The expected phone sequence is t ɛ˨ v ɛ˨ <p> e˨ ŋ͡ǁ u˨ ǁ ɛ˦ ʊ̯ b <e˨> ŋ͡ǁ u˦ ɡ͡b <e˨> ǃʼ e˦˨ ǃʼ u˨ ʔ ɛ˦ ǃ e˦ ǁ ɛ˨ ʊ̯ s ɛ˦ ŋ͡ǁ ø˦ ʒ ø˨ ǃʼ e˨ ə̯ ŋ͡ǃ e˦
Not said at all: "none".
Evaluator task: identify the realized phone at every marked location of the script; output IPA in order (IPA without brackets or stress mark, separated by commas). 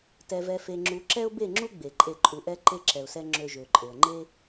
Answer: f, e˦˨, e˨